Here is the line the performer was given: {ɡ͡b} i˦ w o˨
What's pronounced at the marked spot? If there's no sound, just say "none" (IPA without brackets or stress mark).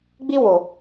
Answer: ɡ͡b